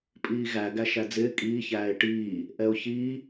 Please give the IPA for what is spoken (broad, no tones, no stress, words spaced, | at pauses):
pʼiːɣæ ɡæʃæd͡zɪː kʼiː çæːɪ̯ʈiː | ʔɛʊ̯çi